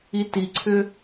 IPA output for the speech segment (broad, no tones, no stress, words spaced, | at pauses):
itiǀʰʏ